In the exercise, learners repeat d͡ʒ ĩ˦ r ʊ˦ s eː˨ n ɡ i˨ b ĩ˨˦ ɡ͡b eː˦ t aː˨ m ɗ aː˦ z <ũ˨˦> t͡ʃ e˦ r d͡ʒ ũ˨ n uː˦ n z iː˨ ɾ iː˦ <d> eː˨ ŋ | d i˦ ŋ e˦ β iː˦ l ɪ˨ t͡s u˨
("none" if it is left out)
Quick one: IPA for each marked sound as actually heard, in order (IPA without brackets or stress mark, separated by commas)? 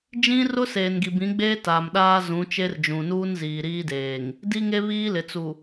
ũ˨˦, d